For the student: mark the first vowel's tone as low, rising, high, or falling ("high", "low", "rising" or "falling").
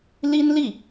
high